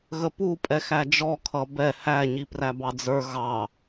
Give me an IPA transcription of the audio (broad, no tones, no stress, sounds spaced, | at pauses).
ɣ ə p u pʼ ɛ x æ d͡ʒ ɔ kʰ ʌ b ɛ h æ ɲ i p r æ b ɑ d͡z ə˞ ɣ ɑ